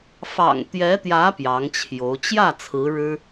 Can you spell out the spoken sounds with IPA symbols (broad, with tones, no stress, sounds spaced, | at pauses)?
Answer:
f ɑ̰˨˩ ŋ t̪ j ɛ˧˥ t̪ j ä˧˥ p j ɑ˧˥ ŋ t͡ɕʰ j o˧˥ ʊ̯ t͡ɕ j ä˥˩ t͡sʰ ɹ̩˧˥ ɻ ɻ̩˥